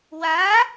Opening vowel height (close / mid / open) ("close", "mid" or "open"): open